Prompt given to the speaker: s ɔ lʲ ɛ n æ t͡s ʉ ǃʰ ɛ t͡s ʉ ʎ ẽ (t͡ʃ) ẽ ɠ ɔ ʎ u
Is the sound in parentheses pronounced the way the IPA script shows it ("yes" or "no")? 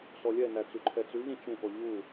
yes